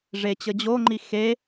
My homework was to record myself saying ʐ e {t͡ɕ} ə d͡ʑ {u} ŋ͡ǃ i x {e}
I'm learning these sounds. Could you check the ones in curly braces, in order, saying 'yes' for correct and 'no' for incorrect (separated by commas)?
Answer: yes, no, yes